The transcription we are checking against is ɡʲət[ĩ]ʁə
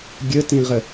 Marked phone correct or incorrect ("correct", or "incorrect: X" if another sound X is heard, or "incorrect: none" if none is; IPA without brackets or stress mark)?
correct